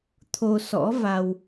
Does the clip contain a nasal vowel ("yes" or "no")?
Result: no